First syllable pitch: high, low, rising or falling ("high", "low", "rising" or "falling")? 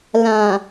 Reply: low